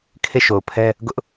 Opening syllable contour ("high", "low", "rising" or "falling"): falling